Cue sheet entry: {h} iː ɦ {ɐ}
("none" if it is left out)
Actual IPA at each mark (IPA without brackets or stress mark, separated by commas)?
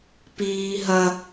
p, ɐ